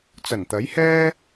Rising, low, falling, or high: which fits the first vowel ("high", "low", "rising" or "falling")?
low